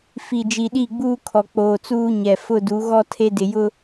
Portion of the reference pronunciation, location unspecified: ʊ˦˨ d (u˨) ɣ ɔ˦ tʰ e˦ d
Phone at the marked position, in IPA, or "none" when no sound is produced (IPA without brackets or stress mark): u˨˦